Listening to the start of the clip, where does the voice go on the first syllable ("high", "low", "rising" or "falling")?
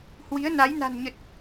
rising